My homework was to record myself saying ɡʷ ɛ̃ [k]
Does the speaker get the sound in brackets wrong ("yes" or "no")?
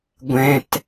yes